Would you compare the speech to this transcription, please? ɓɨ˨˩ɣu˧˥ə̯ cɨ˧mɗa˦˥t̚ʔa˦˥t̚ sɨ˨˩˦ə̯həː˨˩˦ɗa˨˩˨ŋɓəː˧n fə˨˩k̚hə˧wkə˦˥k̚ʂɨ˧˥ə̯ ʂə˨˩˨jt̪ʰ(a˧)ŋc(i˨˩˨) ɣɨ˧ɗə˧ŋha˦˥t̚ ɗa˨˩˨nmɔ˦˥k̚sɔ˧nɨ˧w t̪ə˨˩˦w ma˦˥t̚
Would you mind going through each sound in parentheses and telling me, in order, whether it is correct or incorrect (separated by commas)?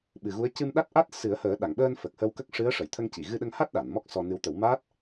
incorrect, correct